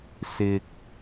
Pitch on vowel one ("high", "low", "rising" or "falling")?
low